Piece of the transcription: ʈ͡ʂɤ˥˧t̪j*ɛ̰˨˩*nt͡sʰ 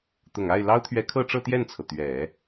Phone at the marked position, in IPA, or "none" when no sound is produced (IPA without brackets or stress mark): ɛ˥˩